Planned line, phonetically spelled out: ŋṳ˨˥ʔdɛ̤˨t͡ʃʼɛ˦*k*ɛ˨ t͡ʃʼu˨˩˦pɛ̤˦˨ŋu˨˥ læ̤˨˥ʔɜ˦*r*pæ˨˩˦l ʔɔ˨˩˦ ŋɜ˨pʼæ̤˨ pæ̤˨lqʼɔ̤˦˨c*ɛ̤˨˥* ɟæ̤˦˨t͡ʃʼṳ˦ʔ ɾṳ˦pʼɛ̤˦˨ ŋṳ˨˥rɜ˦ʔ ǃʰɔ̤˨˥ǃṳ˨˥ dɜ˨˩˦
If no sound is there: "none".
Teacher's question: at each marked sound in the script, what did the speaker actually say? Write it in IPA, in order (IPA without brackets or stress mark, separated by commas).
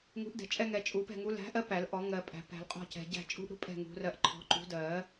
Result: ŋ, none, ɛ̤˨